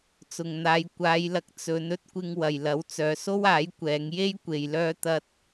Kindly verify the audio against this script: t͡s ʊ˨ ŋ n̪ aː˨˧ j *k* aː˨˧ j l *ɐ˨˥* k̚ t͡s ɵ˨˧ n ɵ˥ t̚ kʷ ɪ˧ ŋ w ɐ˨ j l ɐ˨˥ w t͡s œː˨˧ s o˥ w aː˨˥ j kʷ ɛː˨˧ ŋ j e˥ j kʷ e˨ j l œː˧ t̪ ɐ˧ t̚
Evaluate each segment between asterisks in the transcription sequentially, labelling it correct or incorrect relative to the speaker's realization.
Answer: incorrect: kʷ, correct

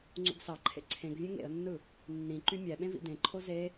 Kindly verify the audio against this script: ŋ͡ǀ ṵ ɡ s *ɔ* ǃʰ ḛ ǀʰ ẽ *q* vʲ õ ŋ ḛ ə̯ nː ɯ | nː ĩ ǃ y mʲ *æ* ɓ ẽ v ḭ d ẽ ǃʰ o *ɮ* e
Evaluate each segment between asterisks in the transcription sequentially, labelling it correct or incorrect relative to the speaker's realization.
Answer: incorrect: ɑ, incorrect: ɡ, correct, incorrect: z

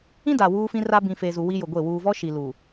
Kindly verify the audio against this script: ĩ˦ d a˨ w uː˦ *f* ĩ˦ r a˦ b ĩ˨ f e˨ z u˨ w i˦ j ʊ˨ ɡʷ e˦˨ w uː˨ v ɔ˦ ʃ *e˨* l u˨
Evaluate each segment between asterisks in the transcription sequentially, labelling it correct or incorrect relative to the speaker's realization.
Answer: correct, incorrect: i˨

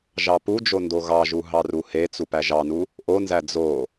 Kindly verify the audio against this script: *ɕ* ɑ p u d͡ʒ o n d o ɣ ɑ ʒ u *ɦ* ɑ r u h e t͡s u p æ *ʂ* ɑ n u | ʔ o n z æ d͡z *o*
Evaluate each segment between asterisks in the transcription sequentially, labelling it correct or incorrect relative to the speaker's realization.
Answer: incorrect: ʒ, correct, incorrect: ʒ, correct

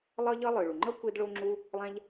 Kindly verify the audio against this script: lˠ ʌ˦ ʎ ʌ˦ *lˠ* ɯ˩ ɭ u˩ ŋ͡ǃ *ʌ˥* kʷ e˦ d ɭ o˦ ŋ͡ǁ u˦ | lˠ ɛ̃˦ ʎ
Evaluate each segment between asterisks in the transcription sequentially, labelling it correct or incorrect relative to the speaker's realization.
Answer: correct, correct

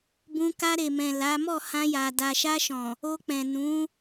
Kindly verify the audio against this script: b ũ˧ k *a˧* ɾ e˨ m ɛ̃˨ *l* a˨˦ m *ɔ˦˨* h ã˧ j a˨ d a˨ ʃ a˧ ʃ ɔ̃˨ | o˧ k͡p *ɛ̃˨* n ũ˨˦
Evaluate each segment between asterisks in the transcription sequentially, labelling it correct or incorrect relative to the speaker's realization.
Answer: correct, correct, correct, correct

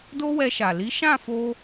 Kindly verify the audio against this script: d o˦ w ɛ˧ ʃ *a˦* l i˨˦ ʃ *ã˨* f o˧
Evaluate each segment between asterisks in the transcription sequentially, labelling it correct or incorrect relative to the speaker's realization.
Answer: incorrect: a˨, incorrect: ã˦˨

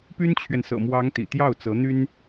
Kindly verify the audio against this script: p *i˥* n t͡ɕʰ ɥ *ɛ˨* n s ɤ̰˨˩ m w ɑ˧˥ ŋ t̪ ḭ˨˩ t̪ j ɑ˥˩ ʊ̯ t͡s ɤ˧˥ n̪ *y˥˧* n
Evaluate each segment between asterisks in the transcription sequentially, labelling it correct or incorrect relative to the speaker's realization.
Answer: incorrect: y˥, correct, incorrect: y˥

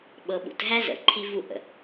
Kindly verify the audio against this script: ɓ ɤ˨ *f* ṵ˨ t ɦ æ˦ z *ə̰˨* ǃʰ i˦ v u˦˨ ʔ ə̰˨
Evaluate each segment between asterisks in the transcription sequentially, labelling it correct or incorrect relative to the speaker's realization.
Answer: incorrect: ɓ, correct

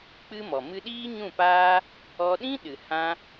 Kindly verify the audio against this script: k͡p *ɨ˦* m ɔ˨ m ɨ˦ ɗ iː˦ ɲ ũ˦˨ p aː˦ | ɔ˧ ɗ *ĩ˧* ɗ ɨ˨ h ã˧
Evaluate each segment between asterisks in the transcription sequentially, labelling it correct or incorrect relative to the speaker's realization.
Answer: correct, incorrect: ĩ˦

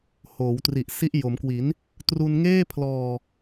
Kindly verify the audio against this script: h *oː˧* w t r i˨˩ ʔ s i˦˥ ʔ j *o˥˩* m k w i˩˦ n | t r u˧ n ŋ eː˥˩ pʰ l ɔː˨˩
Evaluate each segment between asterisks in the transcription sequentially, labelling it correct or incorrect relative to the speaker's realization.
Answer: incorrect: oː˩˦, incorrect: o˩˦

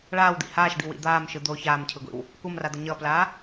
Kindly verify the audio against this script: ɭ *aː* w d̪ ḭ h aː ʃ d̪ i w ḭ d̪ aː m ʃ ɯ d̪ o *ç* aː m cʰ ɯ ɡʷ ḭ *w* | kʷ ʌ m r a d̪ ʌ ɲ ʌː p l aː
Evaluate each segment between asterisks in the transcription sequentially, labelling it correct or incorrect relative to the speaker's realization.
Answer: correct, correct, correct

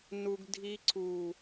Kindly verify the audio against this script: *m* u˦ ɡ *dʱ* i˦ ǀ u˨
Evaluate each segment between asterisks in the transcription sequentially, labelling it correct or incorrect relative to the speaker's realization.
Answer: incorrect: n, correct

